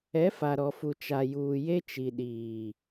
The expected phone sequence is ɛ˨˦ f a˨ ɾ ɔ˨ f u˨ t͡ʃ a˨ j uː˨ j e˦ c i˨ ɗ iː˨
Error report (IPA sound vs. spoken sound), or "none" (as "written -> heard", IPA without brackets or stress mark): c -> t͡ʃ